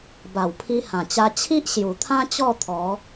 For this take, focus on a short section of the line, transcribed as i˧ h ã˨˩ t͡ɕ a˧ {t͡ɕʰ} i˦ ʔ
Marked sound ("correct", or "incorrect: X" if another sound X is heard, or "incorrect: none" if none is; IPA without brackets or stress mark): correct